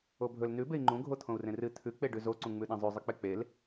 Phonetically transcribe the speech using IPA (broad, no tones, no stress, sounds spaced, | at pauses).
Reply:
o bʱ ɵ l n ʉ b e i̯ ŋ͡ǃ ũ ɡʱ o t̪ʰ õ u̯ r ẽ r ɨ t̪ʰ ʉ k͡p e ɖ ʉ z o ǀ ũ ŋ͡m ʉ ɗ ẽ zˤ ʉ zˤ ɨ k͡p e k͡p e l